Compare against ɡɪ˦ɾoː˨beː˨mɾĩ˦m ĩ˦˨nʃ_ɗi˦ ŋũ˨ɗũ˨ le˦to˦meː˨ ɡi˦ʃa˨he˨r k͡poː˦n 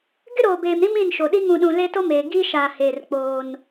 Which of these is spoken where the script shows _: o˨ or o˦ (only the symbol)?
o˨